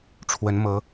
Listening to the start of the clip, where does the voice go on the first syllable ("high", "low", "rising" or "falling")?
rising